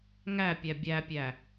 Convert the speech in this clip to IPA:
ŋ æ pʲ æ bʲ æ pʲ æ

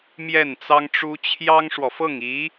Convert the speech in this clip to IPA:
m j ɛ˥˩ n t͡s ɑ˥ ŋ ʈ͡ʂ u˥ t͡ɕʰ j ɑ˥ ŋ ʂ w ɔ˨ f ɤ˥˩ ŋ i˧˥

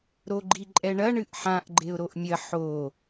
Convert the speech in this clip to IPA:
ɾ o ɡ͡ǃ i ǃʼ ɛ ɳ ɐ ɳ ɨ ʔ ħ ã ʔ ɡ͡ǃ e ʊ̯ ɾ o ʔ mʲ ɐ ħ o

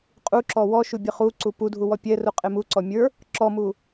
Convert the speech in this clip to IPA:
qʼ u ǁ ɔ w ɔ ʃ u bʲ ə χ u ǀ u p u dʱ u w ɔ pʲ ɛ r u qʼ e m u ǀ ɔ mʲ ə˞ | ǁ ɔ m u

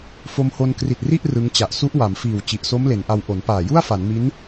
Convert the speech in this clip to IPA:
f o˧ m h o˧ n k r i˨˩ t̚ r i˥˩ ʔ r ɯ˦˥ ŋ t͡ɕ a˨˩ ʔ s u˦˥ ʔ w a˩˦ m f iː˨˩ w t͡ɕ i˨˩ ʔ s o˦˥ m l e˩˦ n ʔ a˧ w ʔ o˩˦ n p aː˨˩ j u˥˩ a̯ f a˩˦ n m i˦˥ n

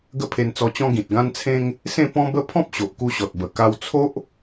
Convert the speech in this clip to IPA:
ɡ ə˥˧ pʰ e˧ n t͡s ɔ˧ t͡ɕ ɔ̃˦ ɡ ĩ˨ t̚ ɡ ã˦ n t͡sʰ ẽ˦ ŋ | s ẽ˥˧ p ɔ̃˦ b ə˦ pʰ ɔ̃˦ p̚ ɕ o˨ ʔ k u˧ ɕ ɔ˨ t̚ b ə˨˩ k a˧ w t͡sʰ o˦ ʔ

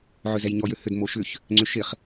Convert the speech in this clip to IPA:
ʕ ø z ɛ j ɲ ɔ j ø h ʏ d m o ʃ ʏ ç | ŋ͡ǀ ʏ ʃ ɪ χ

